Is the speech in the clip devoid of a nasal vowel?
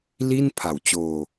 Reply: yes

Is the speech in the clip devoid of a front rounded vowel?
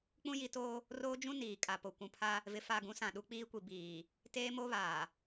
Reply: yes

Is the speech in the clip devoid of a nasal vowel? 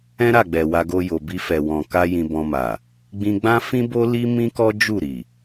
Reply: no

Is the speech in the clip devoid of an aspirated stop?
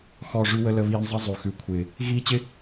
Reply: no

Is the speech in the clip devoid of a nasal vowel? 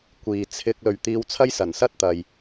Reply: yes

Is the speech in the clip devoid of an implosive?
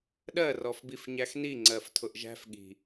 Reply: no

